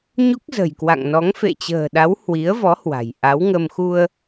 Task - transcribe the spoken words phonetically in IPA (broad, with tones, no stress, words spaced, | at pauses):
ɲu˦˥k̚zə̤˨˩jkwa̰˧˨ŋnɔ˨˦ŋ fḛ˧˨t͡ɕə̤ː˨˩ɗa˨˦w hwi˨˦ə̯vɔ˨˦hwa̤˨˩j ʔa˨˦wŋə˧m xu˧ə̯